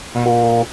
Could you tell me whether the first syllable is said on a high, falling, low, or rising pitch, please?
high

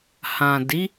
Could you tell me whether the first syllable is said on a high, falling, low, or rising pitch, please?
low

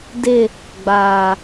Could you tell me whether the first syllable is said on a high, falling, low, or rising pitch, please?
falling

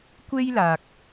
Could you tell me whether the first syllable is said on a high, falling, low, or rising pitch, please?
high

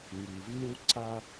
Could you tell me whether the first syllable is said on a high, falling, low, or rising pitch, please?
low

